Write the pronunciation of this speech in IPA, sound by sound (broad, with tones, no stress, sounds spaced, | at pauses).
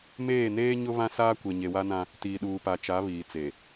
m eː˦˨ n eː˦ ɲ ʊ˦ β ã˦ s aː˦ kʷ e˨ ɲ e˨ w a˦ n ã˦ | t iː˨ ɗ uː˨ p a˨ t͡ʃ a˨˦ β iː˨ t͡s e˨